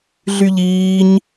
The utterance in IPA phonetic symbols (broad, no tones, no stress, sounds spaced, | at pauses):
ɮ y ʎ iː ɲ